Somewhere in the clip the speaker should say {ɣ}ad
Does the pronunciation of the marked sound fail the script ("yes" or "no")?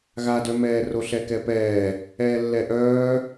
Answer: no